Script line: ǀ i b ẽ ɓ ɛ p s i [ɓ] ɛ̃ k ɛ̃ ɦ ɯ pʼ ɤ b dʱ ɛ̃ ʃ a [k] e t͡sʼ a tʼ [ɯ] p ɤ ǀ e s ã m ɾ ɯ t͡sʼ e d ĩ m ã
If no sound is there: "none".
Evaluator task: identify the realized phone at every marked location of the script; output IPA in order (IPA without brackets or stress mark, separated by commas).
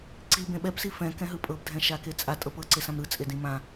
f, k, ɤ